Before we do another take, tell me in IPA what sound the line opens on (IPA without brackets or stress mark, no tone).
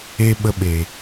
e